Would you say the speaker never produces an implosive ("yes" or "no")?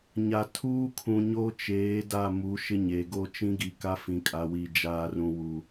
yes